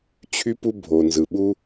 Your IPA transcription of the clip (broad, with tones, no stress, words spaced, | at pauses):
t͡ɕʰy˦pu˦ bʱo˨nzɯ˨ ɓu˦